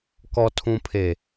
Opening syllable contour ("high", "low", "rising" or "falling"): low